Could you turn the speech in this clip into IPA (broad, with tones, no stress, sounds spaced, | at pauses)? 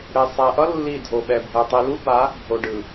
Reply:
ɽ e˨ sˤ ɛ˨ ʔ ʌ˦ lː i˦˨ dʱ o˨ ɓ ɛ˨ bʱ ɛ˨ tˤ i˨ l u˦ b a˨˦ | bʱ o˨ ɖ ɯ˨